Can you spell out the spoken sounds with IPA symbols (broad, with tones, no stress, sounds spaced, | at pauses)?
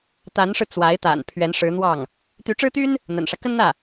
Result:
t̪ a˧˥ n ʂ ɻ̩˧ t͡s w a˧˥ ɪ̯ t̪ a̰˨˩ n pʰ ɥ ɛ˧˥ n ʂ ɻ̩˧˥ n̪ w ɑ˥˩ ŋ | t̪ y˧˥ ʈ͡ʂ ɻ̩˥ t̪ y˥ n | n̪ ə̰˨˩ n ʂ ä˦ k ə˥ n n̪ ä˥˩